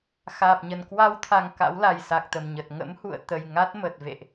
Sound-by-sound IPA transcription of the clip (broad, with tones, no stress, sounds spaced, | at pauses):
x aː˨˩ p̚ ɲ ə˨˩ n k w a˧ w t̪ʰ a˨˩ ŋ k a̰˧˥ w l a˨˩ j s a˨˩ k̚ t̪ ə˧˩ m ɲ ə˨˩ t̚ ŋ ə̰˧˥ m h ṵ˧˨ ə̯ t̪ ə˨˩ j ŋ a˦˥ t̚ m ə˨˩ t̚ v ḛ˧˨ ʔ